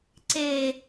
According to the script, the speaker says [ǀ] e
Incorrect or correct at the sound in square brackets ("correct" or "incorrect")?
correct